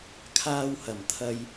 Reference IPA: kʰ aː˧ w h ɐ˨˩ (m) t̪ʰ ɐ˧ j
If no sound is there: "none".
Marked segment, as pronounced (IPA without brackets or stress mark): m